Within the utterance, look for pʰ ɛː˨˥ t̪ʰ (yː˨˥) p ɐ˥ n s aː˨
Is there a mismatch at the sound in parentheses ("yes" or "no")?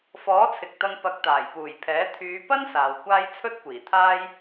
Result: yes